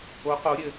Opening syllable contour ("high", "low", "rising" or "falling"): rising